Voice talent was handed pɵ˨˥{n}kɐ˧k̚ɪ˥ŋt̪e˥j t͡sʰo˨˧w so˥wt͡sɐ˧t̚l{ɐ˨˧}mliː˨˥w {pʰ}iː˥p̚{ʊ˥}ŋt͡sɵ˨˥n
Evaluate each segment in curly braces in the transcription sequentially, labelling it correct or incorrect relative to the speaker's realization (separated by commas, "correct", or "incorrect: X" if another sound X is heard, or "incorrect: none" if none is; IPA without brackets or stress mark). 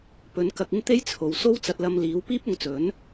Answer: correct, incorrect: ɐ˧, incorrect: p, incorrect: ʊ˨˧